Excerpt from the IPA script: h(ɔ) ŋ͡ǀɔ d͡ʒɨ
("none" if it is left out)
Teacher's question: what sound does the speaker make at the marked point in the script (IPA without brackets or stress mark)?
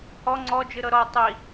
ɔ